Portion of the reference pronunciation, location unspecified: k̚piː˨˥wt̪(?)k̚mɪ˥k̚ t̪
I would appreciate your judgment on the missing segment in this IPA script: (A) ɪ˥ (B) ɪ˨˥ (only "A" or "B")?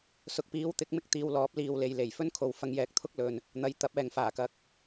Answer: B